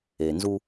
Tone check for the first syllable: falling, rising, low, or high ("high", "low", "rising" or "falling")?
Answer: low